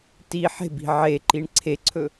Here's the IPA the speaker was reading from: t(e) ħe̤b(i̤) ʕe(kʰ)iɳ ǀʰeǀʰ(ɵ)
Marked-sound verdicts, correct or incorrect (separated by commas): incorrect, correct, incorrect, correct